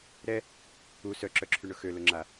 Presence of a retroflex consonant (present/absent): present